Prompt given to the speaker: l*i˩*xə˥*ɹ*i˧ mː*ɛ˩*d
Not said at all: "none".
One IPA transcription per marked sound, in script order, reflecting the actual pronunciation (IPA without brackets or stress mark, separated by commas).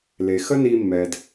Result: e˩, n, ɛ˩